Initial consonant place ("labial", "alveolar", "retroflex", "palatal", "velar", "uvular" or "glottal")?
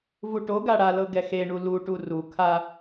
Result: labial